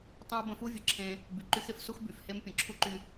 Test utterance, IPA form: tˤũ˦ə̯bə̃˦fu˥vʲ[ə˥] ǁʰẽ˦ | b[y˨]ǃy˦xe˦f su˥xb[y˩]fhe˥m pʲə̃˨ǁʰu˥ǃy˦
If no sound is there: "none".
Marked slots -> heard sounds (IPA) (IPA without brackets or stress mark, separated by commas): ə˨, y˨, y˩